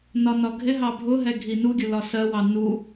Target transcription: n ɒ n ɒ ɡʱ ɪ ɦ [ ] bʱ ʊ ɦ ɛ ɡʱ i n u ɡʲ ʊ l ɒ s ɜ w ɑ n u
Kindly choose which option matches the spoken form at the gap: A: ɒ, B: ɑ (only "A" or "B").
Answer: B